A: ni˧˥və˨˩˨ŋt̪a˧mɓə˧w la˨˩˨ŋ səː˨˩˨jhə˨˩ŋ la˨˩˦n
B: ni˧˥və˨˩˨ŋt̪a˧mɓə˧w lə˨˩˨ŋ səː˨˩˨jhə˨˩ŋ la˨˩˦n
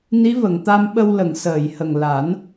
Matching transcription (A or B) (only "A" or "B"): B